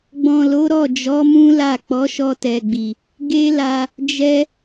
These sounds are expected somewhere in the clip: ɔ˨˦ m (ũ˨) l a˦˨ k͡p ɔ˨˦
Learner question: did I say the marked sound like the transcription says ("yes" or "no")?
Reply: no